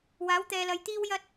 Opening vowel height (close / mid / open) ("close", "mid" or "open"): open